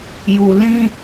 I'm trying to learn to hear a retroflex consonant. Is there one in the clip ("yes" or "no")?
no